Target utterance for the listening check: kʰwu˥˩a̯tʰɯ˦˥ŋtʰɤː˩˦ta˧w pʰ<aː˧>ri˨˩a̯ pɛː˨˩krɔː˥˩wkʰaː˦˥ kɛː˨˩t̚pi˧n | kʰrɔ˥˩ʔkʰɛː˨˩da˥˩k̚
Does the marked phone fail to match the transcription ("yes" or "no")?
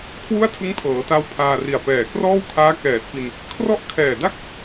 no